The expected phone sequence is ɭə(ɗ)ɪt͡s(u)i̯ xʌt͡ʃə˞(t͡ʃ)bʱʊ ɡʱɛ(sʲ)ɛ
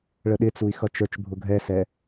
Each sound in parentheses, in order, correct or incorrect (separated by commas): correct, correct, correct, incorrect